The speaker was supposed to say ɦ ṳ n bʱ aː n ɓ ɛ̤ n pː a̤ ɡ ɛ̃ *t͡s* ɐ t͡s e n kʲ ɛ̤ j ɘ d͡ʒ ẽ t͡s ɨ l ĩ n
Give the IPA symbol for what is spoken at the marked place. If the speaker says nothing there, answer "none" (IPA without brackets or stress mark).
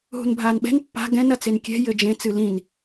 n